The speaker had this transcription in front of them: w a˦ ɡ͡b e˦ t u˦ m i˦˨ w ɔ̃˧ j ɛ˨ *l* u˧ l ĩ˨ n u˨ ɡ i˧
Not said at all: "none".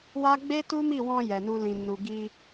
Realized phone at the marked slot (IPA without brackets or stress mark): n